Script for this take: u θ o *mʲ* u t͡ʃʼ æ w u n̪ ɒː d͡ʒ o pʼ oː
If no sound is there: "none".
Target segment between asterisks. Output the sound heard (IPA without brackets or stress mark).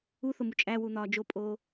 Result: m